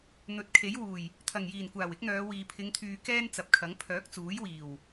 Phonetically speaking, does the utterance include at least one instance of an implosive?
no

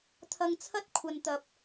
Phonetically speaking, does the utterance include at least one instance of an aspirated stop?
yes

